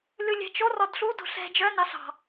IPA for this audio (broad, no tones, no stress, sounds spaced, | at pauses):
l ʉ lʲ ɛ̤ t͡ʃ o r ɔ d ɬ u d o̤ ɬ ɛ̤ d͡ʒ œ n ɑ ɬ ɑ̤